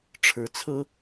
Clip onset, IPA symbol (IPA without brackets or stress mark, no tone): ʈ͡ʂʰ